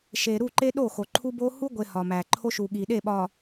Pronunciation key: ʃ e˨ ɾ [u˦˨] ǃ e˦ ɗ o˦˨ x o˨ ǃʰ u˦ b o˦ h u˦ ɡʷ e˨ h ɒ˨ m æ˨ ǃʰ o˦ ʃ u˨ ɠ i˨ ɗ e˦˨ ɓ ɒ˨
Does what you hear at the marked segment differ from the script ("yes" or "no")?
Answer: no